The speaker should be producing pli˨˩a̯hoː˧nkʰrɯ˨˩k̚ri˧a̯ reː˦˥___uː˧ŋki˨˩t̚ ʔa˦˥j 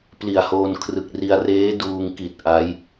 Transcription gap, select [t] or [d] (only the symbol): d